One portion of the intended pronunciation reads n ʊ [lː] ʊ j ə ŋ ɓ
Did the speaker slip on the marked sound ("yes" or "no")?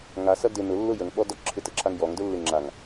no